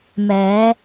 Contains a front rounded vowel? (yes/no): no